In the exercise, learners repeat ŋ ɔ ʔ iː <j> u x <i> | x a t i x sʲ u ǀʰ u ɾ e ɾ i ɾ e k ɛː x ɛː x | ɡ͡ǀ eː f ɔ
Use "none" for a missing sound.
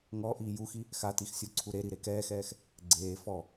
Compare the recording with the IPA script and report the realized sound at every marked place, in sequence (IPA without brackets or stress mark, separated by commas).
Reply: j, i